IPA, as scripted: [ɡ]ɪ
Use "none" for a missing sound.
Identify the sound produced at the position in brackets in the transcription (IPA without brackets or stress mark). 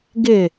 ɡ